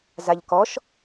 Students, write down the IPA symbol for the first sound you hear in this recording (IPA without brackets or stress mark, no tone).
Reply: z